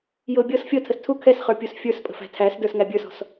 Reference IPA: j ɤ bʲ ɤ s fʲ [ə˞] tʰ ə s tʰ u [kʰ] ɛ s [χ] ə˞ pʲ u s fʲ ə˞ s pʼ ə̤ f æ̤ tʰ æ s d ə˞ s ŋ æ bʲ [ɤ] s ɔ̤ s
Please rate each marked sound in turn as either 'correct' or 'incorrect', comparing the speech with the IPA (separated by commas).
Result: incorrect, correct, correct, incorrect